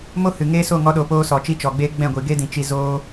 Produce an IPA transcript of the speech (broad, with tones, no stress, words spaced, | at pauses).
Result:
mo˦hɨ˨ŋe˦ so˦˨ŋɔ˧ɗo˨poː˧ sɔ˨t͡ʃi˦t͡ʃɔ˨ɡ͡beː˦ ɡ͡bɛ̃˦˨ɡʷi˨ɡe˦dĩ˨ t͡ʃi˧zoː˦